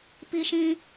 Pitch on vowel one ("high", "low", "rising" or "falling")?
high